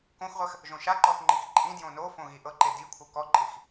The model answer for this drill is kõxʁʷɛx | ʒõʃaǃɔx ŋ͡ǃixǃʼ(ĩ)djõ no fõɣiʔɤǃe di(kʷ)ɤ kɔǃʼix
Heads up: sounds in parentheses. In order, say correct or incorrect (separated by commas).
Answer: correct, incorrect